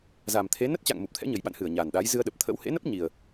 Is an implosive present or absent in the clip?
present